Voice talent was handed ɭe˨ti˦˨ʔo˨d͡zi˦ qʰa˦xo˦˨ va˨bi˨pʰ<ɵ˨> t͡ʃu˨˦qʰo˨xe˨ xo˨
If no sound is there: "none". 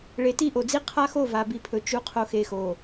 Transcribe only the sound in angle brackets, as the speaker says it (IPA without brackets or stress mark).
ɵ˨